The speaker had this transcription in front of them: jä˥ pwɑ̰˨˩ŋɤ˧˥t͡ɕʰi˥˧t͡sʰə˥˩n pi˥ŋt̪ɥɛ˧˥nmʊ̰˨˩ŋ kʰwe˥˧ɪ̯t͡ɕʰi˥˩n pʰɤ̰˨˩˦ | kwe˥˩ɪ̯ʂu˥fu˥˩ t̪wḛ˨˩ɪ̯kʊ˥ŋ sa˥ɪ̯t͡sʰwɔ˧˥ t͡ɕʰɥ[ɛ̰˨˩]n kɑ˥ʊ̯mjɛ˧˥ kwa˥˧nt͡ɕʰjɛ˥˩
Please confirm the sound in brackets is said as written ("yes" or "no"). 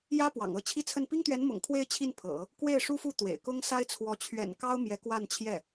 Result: yes